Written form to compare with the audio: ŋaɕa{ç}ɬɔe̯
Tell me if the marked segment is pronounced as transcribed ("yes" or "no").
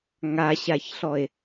yes